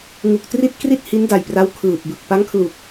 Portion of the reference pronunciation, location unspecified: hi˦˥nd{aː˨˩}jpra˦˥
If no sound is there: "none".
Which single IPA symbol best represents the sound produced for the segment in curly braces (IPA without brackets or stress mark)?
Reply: a˨˩